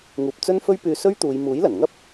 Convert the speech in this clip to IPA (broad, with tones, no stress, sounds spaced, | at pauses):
ŋ uː˧ p̚ t͡s ɵ˥ n f ɵ˥ ɥ p yː˧ s ɵ˥ ɥ t̪ uː˨˧ j m uː˨˥ j l ɐ˨˩ n ŋ ɐ˥ p̚